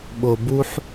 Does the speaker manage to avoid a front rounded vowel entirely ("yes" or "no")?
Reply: yes